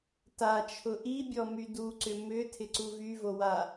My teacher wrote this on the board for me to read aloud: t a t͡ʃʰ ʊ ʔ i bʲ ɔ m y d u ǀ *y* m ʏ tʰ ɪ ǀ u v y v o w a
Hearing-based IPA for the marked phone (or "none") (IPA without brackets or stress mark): ʏ